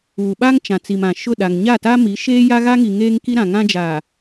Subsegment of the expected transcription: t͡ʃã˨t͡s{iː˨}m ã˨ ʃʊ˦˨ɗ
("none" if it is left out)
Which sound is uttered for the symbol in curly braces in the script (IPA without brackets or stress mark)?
i˨